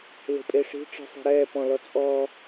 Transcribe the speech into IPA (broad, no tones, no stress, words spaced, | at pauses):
le̤pʼeʂi̤ ʈ͡ʂi̤sˤe̤ɾɛː pɔ̃lɔt͡sʼɔ